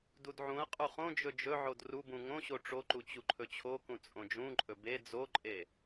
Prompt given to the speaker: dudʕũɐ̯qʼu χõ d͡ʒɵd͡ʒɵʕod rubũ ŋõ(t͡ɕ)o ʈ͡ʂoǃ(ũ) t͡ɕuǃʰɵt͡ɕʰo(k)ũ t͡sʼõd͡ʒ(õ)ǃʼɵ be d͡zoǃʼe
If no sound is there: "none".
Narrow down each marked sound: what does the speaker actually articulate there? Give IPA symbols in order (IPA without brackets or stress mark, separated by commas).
ɕ, u, k, ũ